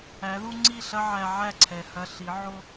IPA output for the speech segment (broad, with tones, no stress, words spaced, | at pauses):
æ˨˦ðu˦ ŋ͡ǀi˦˨ɬɐ˦ ʕæ˧ʕæ˦˨ǀʰɛ˨hɐ˧ ɬi˨˦ʕo˦